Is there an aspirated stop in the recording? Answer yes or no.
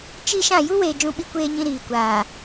no